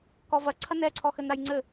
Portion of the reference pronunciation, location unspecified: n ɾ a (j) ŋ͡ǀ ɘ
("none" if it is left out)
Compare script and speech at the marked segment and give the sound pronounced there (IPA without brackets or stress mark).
j